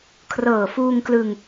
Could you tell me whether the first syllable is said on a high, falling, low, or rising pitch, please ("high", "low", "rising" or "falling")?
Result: low